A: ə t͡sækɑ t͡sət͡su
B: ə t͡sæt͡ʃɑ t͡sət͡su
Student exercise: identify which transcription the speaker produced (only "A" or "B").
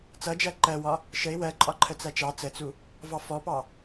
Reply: B